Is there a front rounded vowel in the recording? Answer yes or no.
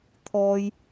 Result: no